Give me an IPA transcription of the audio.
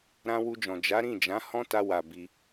ɾ ã˧ w u˧ d͡ʒ ɔ̃˨ d͡ʒ a˨˦ ɾ ĩ˦˨ d͡ʒ ã˨˦ h ɔ̃˦ t a˧ w a˨ b i˧

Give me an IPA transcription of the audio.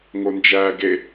ŋ o n d͡ʒ æ ɡ e

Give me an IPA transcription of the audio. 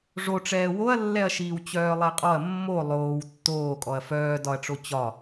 ʐ o ʈ͡ʂ ɛː w o ɐ̯ lː ɛ ɐ̯ ʃ iː w t͡ɕ œː lˠ ɛ qʼ ɔ ɐ̯ mː o lˠ oː w tː oː kʼ ɔ ɐ̯ f œː d ɒ ɐ̯ ʈ͡ʂ o t͡ɕ ɒ

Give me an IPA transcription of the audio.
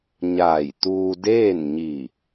ɲ aː˧˩ j t̪ uː˧ d eː˥˨ n ɲ i˧˩

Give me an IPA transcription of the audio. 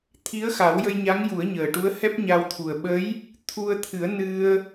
t̪ʰ i˧˥ ə̯ x a˨˩˦ w j ə˧ j ɲ a˧˥ ŋ j u˨˩˦ ə̯ ɲ əː˨˩ ʈ u˧˥ ə̯ h ɛ˦˥ p̚ ɲ a˧ w t̪ʰ u˨˩ ə̯ ɓ ə˧˥ j | t̪ʰ u˧ ə̯ t̪ʰ ɨ˨˩˦ ə̯ n ɨ˧ ə̯

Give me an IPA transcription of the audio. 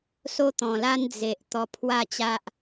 s o˧ t̪ ɔ̃˨˩ l a˧ n d͡z e˨ ʔ t̪ ɔ˧ pʰ w a˥˧ t͡ɕ a˦ ʔ

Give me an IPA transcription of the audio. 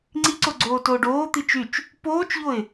ŋ͡ǀ i ǀ o ɡ͡ǀ oː t oː ɖ oː t̪ i t͡ʃ y t͡ʃ | p oː t͡ʃ ʎ o ɪ̯

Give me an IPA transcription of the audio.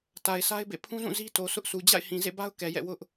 t a˨ ɪ̯ s a˦ ɪ̯ b ḛ˦˨ pʰ ũ˦ z ũ˦˨ z i˦ t o˨ s ʊ˦ ʔ s u˨ d͡ʑ a̰˦˨ ɪ̯ h ĩ˨ z ḛ˦˨ b a˦ ʊ̯ k ɛ˨ j ɛ̰˦˨ w ʊ˦ ʔ

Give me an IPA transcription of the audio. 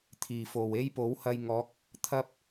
t̪ʰ iː˨˩ f o˨˩ w e˥ j p o˨˥ w h ɐ˧ j ŋ ɔː˨˥ k̚ | t̪ʰ ɐ˧ p̚

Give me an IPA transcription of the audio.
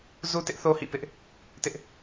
z u˦ t ɪ˦ ʔ θ o˦ h ḭ˦˨ p ɪ˦ ʔ | t ɪ˦ ʔ

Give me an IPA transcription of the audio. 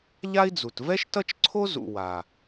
ʎ a˥ i̯ d͡z u˨ t v ɛ˥ ʃ t ʌ˥ t͡ʃ ǀʰ o˥ z ṵ˨ w a˩

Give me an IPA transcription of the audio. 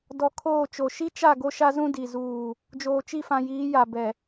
d ɔ˨ kʰ oː˦˨ t͡ʃ o˨ ʃ i˦ t͡ʃ a˦˨ ɡ o˦ ʃ a˦ z ũ˦ d i˨ z uː˦˨ | d͡ʒ oː˨ t͡ʃ i˦˨ f ã˨ j iː˨˦ j a˨ b ɛ˨

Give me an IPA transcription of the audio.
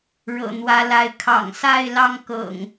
ɻ ɤ̰˨˩ n̪ w ä˨˦ l a˨˦ ɪ̯ kʰ ɑ̰˨˩ ŋ s a˥˨ ɪ̯ l ɑ˥˨ ŋ k ɤ̰˨˩ ŋ

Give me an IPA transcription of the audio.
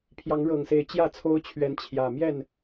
pʰ j ɑ˨˦ ŋ ɻ ɤ˨˩ ŋ s e˨˦ ɪ̯ t͡ɕ j ä˥˨ t͡sʰ o˦ ʊ̯ t͡ɕʰ ɥ ɛ˨˦ n t͡ɕʰ j ä˨˩ m j ɛ˥˨ n

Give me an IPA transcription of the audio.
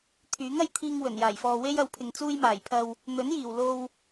t̪ʰ yː˨˥ ŋ ɐ˧ j t̪ʰ iː˧ ŋ w ɵ˨˩ n j aː˨˩ j f ɔː˨ w e˥ j ɐ˨˥ w pʰ ɪ˨ ŋ t͡s uː˧ j m aː˨˩ j pʰ ɐ˨ w | n̪ ɵ˨˥ n j iː˨˩ w l o˧ w

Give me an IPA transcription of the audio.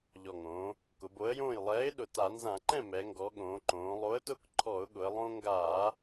ʎ ɔ˨˩ ŋ õː˩˧ | k ʊ˩˧ b o˨˥ ə̯ j õː˥˩ j lˠ ɛː˨˥ ɪ̯ ɗ ʊ˨˩ t a˧˩˧ n z ã˧˩˧ ǃ ɛ̃˥˩ m ɛ˩˧ ŋ ɡ ɔ˩˧ ɠ õː˩˧ ǃ õː˩˧ lˠ o˨˥ ə̯ t ʊː˦ k ǃʰ ɔ˧˩˧ ʊ̯ ɠ ʊ˩˧ ə̯ lˠ õː˦ ŋ ɡ aː˧˩˧

